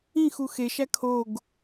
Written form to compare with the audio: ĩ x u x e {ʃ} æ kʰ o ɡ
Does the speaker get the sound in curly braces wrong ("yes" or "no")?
no